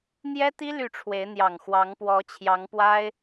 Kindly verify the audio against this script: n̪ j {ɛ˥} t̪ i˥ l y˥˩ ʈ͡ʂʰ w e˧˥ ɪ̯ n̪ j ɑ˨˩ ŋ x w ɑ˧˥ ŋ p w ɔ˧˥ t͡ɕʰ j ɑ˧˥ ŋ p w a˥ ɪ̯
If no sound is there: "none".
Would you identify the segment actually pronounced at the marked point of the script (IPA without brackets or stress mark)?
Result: ɛ˥